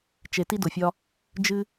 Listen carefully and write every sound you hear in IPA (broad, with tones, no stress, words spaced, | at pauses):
t͡ʃe˨ ti˦dʊ˨fʲɒ˦ | d͡ʒɨ˦